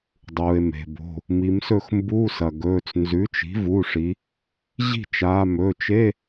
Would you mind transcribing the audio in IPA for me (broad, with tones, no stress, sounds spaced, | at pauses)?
dˤ uː˩ e̯ m e̤˩ b o̤˩˧˩ | m i˩˧ m s ɵ˥˩ x m b uː˧˥˧ s ɐ˩ ɡ ɵː˩˧˩ t͡s n z ʉ˩˥ t͡ʃ i̤˩˥ v u˩˧˩ ʂ i˩˧ | ʑ i̤˥˩ t͡ʃ aː˩˧˩ m ɵ˩˧˩ t͡ʃ e˧˥˧